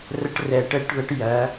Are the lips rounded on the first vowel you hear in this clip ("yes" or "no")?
no